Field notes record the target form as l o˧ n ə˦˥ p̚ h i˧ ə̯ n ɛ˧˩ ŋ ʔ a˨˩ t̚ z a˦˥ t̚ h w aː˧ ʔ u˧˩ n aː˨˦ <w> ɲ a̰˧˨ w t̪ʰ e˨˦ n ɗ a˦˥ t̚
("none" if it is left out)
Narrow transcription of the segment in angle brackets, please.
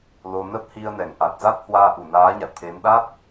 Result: none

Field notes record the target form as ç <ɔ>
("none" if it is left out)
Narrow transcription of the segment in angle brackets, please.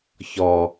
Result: ɔ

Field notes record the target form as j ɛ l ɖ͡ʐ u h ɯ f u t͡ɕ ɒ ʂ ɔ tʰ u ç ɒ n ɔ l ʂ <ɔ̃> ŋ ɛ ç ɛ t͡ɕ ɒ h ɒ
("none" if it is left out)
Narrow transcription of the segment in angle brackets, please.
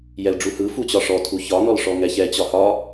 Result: ɔ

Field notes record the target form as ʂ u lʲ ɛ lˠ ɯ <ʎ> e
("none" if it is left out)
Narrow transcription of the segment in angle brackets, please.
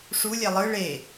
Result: ɭ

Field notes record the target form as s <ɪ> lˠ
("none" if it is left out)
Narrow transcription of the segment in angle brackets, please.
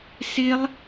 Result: ɪ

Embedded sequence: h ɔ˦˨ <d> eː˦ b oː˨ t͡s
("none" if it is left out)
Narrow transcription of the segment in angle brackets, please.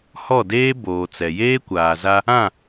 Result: d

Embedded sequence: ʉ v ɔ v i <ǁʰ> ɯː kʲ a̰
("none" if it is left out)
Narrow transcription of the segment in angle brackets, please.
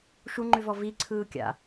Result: ǀʰ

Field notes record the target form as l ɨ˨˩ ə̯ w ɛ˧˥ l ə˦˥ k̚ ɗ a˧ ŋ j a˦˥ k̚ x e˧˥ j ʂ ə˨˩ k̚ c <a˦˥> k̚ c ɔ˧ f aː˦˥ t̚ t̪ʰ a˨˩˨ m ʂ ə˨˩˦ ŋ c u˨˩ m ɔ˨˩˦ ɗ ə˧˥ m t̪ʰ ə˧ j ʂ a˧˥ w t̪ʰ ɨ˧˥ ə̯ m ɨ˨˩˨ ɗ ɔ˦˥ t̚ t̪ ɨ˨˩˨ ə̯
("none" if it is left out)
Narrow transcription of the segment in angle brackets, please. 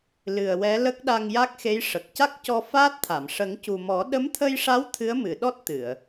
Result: a˦˥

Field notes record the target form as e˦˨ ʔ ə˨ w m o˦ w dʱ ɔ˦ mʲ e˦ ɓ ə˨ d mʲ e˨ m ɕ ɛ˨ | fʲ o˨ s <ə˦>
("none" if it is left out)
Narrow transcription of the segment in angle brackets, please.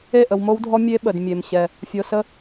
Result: ə˦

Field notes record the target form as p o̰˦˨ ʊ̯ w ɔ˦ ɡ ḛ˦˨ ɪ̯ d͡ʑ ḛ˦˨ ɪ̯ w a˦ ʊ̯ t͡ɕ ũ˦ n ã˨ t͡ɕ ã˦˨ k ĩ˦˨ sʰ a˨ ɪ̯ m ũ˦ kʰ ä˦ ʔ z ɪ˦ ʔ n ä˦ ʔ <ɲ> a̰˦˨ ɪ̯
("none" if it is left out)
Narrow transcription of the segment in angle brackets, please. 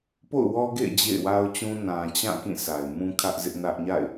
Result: ɲ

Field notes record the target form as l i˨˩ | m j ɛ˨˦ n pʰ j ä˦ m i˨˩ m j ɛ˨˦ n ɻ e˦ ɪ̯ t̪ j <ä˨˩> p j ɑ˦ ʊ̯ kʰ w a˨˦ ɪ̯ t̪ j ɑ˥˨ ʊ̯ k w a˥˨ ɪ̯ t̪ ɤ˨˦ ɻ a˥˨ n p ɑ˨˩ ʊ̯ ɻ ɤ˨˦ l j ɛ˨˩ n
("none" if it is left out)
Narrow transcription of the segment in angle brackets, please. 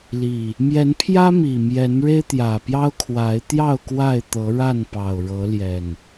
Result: ä˨˩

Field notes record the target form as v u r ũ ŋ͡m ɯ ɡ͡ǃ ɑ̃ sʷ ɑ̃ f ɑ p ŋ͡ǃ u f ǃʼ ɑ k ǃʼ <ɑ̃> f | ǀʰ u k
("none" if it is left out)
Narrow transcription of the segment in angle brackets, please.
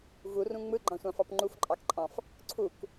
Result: ɑ̃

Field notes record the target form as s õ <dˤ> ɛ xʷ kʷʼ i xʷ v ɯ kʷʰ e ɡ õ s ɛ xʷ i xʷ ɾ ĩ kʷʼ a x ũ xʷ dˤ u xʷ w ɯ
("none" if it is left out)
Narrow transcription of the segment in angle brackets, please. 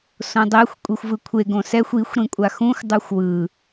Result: dˤ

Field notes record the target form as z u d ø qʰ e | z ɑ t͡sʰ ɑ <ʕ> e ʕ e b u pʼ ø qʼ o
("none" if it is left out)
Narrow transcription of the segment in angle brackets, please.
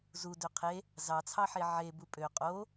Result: ħ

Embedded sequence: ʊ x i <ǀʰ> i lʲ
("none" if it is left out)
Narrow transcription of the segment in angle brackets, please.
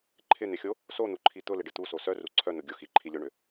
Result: ǃʰ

